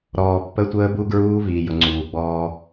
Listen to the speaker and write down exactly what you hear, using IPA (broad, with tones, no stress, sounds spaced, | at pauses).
ɾ ɔː˨ pː ə˦ tʷ əː˦ b u˦ ɡ ɹ uː˦ v iː˨ j ʊ˨ ŋ͡ǀ uː˨ ɡ͡b ɔː˦